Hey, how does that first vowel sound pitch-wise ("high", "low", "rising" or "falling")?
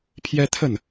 high